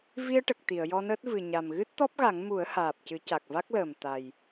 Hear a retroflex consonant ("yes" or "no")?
yes